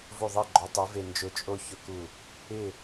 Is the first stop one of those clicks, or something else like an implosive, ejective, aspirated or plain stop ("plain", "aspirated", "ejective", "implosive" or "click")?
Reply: click